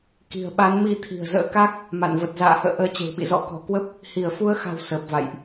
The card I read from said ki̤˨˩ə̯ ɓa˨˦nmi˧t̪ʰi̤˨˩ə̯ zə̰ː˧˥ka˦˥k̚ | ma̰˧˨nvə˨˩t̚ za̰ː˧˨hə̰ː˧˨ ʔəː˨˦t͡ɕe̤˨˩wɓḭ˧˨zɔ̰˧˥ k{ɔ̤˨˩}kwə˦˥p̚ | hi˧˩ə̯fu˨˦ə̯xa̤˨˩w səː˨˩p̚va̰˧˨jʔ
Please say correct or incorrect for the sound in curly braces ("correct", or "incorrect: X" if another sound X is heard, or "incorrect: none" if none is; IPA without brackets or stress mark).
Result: correct